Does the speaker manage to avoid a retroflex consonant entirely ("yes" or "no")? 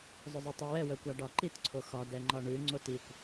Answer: no